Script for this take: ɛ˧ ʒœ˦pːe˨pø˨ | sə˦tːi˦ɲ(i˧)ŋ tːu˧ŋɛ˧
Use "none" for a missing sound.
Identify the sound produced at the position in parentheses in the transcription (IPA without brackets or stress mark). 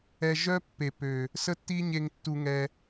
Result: e˧